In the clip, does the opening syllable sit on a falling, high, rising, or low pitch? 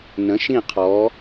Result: rising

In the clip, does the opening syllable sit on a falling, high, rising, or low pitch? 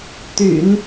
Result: low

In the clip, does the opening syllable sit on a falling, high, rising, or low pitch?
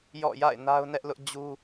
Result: falling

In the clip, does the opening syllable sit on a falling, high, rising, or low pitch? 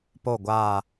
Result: falling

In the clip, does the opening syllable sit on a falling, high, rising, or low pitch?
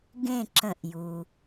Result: falling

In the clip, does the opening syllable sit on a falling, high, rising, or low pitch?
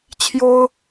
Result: high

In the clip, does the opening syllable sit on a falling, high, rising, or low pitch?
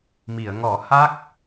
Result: low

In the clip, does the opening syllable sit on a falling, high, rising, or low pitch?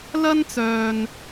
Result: high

